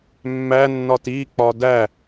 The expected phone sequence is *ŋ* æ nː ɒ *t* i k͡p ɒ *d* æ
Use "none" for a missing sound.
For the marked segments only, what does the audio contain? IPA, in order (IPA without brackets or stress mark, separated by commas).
mː, t, d